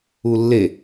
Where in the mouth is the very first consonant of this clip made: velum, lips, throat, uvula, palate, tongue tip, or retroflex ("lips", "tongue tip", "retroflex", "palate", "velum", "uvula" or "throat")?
tongue tip